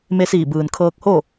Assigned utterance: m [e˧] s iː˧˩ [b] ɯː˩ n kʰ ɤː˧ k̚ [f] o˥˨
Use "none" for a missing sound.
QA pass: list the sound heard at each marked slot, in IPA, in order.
e˧, b, h

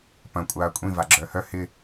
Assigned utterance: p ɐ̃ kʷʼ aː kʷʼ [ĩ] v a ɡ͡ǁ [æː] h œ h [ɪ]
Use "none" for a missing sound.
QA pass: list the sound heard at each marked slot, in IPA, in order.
ĩ, œː, ɪ

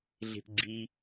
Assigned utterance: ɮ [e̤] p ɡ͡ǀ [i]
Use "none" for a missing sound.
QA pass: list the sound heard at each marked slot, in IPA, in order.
e̤, i

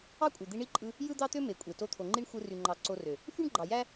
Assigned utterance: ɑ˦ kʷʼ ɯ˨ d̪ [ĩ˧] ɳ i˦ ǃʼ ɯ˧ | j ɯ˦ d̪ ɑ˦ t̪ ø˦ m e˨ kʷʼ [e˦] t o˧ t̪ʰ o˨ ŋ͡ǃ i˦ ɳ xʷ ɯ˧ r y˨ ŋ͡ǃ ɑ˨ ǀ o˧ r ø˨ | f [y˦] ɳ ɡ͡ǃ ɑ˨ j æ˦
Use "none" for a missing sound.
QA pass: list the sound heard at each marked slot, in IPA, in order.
i˧, e˨, y˦

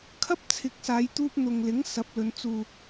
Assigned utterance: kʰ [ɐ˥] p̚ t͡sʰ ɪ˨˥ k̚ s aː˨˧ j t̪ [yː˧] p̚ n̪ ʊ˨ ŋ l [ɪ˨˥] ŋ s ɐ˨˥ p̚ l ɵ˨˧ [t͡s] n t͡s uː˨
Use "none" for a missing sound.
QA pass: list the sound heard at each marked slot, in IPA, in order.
ɐ˥, uː˧, ɪ˨˥, none

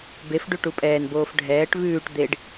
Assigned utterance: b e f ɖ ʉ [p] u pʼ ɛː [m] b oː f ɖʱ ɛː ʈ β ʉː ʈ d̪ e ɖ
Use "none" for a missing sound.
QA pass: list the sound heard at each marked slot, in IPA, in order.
ʈ, n

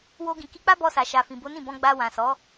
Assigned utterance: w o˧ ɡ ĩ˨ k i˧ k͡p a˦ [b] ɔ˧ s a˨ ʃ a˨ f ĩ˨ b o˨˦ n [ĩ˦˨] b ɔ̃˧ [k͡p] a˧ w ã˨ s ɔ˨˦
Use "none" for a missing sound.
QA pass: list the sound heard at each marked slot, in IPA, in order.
b, ĩ˦˨, ɡ͡b

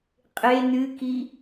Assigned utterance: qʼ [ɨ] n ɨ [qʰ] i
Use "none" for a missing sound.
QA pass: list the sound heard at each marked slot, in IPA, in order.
e, k

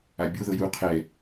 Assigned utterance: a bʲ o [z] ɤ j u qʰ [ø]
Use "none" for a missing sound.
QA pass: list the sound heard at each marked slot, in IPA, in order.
ð, ɛ

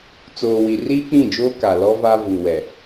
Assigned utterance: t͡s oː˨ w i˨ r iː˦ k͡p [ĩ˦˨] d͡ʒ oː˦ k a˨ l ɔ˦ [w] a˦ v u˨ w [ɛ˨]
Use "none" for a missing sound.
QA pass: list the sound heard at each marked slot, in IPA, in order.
ĩ˦˨, v, ɛ˨

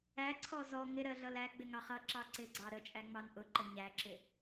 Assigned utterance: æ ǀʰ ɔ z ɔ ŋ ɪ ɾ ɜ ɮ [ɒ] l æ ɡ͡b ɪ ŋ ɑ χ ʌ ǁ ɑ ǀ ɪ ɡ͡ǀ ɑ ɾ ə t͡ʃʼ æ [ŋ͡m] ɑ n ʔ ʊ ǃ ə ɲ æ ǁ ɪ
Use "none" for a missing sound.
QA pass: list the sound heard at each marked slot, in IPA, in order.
ʌ, ŋ͡m

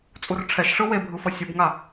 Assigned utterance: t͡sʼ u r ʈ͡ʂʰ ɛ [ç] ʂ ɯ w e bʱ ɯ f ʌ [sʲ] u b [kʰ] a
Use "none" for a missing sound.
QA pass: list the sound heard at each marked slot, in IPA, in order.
ʃ, sʲ, ŋ

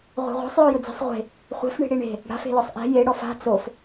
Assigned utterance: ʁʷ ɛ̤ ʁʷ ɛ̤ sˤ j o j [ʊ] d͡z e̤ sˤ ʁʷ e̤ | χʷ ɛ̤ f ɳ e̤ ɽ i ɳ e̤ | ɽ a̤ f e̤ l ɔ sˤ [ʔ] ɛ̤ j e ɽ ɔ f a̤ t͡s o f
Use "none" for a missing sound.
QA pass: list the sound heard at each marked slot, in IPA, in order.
ʊ, ʔ

